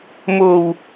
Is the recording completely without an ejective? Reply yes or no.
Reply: yes